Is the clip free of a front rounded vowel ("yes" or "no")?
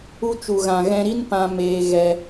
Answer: yes